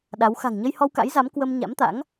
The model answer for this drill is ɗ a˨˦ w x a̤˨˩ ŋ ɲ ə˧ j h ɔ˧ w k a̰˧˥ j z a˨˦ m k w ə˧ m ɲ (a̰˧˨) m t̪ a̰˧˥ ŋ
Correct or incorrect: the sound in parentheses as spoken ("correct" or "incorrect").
incorrect